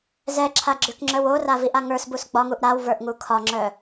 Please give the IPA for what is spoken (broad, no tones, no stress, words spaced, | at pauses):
zɛǁʰaɡ͡ǁʏkŋ͡ǁœw oraviʔa ŋə˞sbus ɡ͡bɒŋuʔ ɾawvə˞ʔŋu kʰɒŋ͡ǁœ